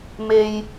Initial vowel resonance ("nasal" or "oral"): oral